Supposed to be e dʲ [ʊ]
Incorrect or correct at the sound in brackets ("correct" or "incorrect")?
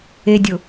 correct